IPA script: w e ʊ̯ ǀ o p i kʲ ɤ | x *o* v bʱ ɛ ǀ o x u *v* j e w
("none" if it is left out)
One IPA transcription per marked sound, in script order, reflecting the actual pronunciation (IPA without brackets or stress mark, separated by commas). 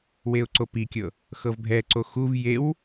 ɤ, v